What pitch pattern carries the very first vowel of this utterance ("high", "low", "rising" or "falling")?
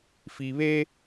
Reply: low